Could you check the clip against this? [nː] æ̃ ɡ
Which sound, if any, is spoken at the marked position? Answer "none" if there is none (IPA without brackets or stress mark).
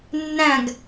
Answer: nː